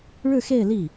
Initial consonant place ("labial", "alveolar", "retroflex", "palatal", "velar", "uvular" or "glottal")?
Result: retroflex